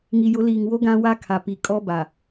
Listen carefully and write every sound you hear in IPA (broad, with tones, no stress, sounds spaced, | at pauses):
ŋ i˨ j ʊ˨˦ l iː˨ ŋ w o˦ ɡ ã˦ w a˦ kʰ a˨ p i˨ kʼ ɔ˦ b a˨